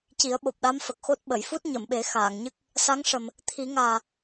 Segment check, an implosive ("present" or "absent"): present